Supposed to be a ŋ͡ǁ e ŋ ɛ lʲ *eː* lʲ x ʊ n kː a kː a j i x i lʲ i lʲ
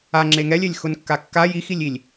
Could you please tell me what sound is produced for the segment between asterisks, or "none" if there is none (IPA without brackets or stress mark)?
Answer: e